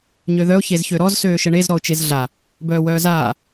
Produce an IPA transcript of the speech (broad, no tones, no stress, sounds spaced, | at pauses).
ɲ ø ð œ ʊ̯ ç e z ç ø ɾ ɔ z s øː ʃ ə ɳ e z ɾ ɔ ʊ̯ t͡ʃ e z ɮ a | b œː w œː z aː